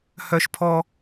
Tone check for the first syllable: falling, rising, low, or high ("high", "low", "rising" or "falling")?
high